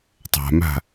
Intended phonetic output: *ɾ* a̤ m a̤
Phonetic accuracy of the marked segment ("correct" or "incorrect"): incorrect